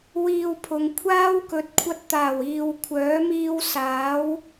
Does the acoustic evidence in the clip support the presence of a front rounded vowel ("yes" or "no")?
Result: yes